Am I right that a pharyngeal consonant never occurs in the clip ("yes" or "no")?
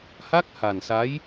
yes